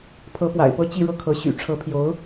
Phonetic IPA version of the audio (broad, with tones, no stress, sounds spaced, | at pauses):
pʰ ɤ˧˥ p w a̰˨˩ ɪ̯ p ɤ˥ t͡ɕ i˥˧ ɻ ɤ˥˩ kʰ ɤ˧˥ ɕ y̰˨˩ ʈ͡ʂʰ ɤ˧˥ pʰ j o˧˥ ʊ̯